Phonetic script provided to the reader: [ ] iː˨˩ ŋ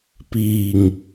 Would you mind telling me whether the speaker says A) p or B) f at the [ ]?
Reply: A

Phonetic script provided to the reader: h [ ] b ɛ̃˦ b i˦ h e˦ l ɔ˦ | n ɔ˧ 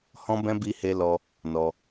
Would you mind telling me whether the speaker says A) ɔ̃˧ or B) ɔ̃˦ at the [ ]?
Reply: B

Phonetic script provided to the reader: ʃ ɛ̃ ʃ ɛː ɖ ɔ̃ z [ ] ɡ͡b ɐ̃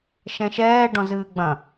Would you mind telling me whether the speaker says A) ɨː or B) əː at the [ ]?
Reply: A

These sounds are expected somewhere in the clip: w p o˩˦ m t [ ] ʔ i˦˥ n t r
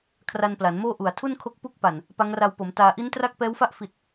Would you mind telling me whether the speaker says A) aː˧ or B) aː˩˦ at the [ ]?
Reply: A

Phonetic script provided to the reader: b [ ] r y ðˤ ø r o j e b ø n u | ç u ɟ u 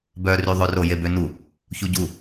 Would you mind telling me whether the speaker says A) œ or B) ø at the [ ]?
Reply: A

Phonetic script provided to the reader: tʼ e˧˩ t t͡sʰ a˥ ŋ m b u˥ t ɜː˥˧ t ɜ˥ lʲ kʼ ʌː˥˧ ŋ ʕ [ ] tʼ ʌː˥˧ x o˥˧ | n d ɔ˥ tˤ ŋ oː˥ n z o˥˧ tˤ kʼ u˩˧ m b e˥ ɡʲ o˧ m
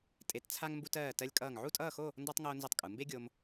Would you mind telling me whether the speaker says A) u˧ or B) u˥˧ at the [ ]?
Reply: B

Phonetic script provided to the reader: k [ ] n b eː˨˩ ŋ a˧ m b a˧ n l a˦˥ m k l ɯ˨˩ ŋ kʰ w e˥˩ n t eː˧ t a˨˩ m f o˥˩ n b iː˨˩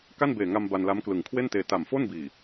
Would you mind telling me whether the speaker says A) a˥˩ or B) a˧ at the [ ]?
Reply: A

